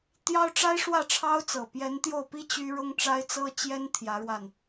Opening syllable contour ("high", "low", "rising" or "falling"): high